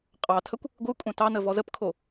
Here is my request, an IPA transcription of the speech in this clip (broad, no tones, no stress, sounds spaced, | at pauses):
qʼ ɑ tʰ ə kʷ | ɡʷ ɯ kʷʼ œ̃ t ɑ n ə v ɔ z ə p kʰ o